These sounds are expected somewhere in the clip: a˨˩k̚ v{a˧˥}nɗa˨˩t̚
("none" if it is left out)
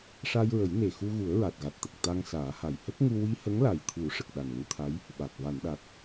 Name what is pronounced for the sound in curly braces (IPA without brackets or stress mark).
a˨˩˨